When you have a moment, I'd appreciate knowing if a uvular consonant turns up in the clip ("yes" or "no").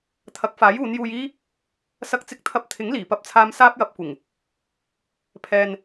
no